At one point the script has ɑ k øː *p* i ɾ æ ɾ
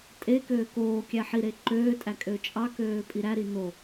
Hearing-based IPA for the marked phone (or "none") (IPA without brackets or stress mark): pʼ